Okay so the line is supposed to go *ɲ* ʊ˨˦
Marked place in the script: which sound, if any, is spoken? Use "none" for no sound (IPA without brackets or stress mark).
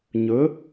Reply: ɲ